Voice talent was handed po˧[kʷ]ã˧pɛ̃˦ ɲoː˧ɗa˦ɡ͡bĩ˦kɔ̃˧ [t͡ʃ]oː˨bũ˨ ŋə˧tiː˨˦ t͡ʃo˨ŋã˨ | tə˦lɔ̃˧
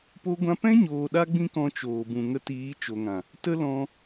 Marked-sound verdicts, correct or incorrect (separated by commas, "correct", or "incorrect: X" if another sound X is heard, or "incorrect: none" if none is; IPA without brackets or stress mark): incorrect: ɡʷ, correct